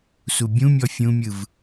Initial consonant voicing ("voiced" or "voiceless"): voiceless